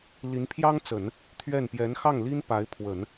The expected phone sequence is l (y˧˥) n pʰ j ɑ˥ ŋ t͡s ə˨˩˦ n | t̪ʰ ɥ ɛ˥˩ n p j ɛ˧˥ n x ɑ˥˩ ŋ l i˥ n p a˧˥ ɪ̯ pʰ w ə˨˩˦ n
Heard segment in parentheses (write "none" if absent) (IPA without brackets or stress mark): i˧˥